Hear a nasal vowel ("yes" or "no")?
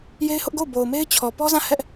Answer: yes